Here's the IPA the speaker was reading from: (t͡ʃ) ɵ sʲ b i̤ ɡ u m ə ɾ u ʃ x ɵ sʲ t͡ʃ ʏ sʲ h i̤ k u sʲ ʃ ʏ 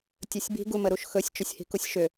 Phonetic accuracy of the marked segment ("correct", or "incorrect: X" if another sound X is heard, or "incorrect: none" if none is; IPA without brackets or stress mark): incorrect: tʲ